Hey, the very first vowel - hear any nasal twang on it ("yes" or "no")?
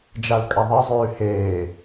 no